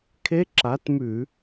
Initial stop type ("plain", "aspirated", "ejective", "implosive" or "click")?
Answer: aspirated